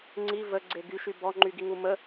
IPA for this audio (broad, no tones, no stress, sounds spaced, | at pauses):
ŋ͡ǀ i v ə ɡ͡ǀ e ɡ y ʃ y b ɔ ŋ͡ǃ y ɡ i ŋ u m ə